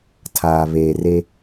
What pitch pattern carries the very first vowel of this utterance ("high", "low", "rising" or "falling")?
low